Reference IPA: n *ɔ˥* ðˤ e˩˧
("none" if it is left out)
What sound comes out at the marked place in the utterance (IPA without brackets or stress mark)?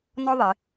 ɔ˥